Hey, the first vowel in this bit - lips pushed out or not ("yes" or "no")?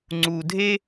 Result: yes